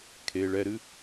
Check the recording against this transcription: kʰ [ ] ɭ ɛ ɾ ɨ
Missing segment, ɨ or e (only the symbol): e